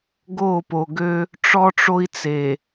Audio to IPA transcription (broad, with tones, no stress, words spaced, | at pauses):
ɡo˦˨po˨ɡø˦ | ʈ͡ʂɔ˦ʈ͡ʂo˦i̯t͡se˨